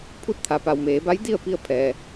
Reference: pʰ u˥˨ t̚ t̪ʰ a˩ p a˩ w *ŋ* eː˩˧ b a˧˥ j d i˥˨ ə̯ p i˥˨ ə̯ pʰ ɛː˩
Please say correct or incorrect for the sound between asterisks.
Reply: incorrect